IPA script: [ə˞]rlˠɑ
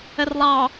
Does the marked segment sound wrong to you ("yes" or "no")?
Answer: yes